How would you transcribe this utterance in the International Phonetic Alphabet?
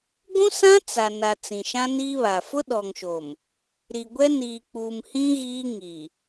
ɡʷũ˦sã˦ t͡sa˨na˨ t͡sĩ˨ʃã˦niː˦βa˨ fʊ˦ɗɔ˨ŋʃo˨m | ɾi˨ɡʷɛ˦ niː˨k͡puː˨mhĩ˦ ɣiː˦ ŋi˨

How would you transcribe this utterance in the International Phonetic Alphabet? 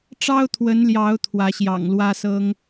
ʈ͡ʂɑ˦ʊ̯t̪ʰwə˨˦nljɑ˨˦ʊ̯ t̪ʰwä˨˦ɕjɑ̰˨˩ŋlwä˦sɤ˦ŋ

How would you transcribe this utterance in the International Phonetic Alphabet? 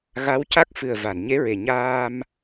ɣa˧˥wca˦˥k̚ fɨ˨˩ə̯ va˨˩˨nɲe˧˥ ɹe˨˩ɲaː˧m

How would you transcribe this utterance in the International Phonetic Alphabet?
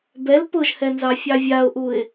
bɛl pʊʒhɛnzɑfʲɑ vʲaʊ̯ʔuɪ̯

